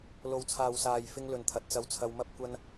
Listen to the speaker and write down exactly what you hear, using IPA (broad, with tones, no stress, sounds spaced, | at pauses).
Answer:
l o˨ w t͡sʰ aː˨ w s aː˨ j f ɪ˧ ŋ l ɵ˨ n t̪ʰ ɐ˨ t̚ t͡s ɐ˧ w t͡sʰ ɐ˧ w m ɐ˥ p̚ kʷ ɐ˥ n